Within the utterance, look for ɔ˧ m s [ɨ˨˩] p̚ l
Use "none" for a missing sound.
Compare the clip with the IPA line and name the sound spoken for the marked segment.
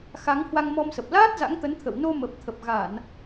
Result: ə˨˩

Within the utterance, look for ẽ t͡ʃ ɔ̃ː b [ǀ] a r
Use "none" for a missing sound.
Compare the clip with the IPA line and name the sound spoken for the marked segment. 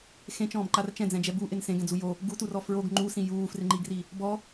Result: ǃ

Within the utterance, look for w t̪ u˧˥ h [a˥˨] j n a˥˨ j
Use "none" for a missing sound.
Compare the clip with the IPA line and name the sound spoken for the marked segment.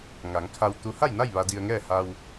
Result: a˥˨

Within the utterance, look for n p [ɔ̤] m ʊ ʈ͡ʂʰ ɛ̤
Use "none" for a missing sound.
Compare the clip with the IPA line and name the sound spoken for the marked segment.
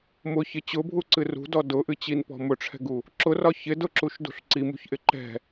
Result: ɔ̤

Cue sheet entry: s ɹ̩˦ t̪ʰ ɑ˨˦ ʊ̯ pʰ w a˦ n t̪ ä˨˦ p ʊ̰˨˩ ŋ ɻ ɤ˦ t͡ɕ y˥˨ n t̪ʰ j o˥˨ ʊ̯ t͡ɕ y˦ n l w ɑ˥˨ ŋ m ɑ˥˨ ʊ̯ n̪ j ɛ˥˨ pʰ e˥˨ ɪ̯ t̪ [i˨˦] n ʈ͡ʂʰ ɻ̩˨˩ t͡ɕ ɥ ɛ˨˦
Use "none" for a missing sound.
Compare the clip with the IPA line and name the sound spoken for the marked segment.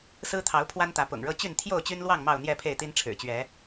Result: i˦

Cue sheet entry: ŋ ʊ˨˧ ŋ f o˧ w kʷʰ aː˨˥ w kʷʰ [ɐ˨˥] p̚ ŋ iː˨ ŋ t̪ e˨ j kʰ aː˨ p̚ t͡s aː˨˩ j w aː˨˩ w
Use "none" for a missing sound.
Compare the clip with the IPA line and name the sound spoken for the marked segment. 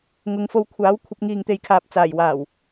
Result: ɐ˨˥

